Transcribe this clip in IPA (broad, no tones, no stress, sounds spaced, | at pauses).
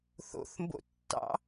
θ o̰ θ m b o̰ tː ɑ̰